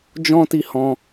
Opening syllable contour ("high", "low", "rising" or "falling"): high